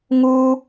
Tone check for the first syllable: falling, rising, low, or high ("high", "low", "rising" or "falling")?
high